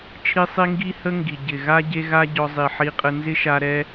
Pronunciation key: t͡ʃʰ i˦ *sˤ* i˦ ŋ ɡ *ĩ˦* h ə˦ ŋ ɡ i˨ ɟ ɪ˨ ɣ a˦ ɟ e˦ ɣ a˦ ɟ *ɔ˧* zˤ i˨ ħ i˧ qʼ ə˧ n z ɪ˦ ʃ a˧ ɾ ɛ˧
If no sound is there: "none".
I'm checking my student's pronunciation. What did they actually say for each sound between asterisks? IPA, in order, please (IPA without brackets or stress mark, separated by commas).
sˤ, i˦, ɔ˧